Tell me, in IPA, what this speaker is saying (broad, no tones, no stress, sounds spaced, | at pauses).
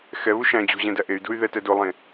x ɛ β u ʃ æ̃ d͡ʑ ṳ ʑ ɛ̃ d æ ʔ e y̯ d ṳ y̯ ð ɛ t ɛ d o lˠ ẽ